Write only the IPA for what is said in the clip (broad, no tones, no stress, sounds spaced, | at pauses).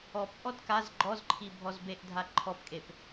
ɔ p ʔ ɔ d k a z ɡ͡ǃ ɔ z ǃʰ i bʱ ɔ z b e ʔ dʱ a ǃʰ ɔ p kʼ e p